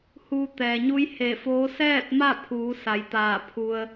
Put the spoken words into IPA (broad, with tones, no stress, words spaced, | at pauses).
huː˧ t̪ɛː˩ɲu˧˥j he˧˩foː˧˥ sɛː˥˨t̚ma˥˨pʰuː˩˧ sa˩˧jt̪aː˧˩ pʰu˧ə̯